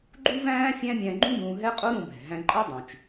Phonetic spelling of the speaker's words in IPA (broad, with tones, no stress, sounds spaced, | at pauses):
ɡ͡ǃ u˥ v æ̃ː˥ fʲ æ̃˥ mʲ æ̃˧ ɡ͡ǃ ũ˥ d ũː˧ ɦ ɛ˥ qʼ o˥ ɾ ũ˧ b ɛ̤˩ ɦ æ̃˧ ǃʼ ɤ˥ dˤ ũ˩ t͡ʃ